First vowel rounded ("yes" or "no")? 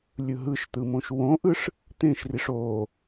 no